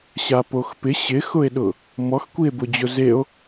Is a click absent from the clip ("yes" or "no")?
yes